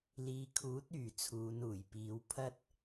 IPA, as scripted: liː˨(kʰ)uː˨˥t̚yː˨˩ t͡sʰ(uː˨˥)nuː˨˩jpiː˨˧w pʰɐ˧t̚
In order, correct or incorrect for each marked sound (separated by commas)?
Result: correct, incorrect